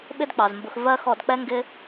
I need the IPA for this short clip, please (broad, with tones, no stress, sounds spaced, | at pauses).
ɓ ɪ˦ d k͡p ɑ˨ z m b ʊ˧ x v ɜ˦ x ɔ˧ d k͡p ɛ˦ ŋ ɡ ɪ˦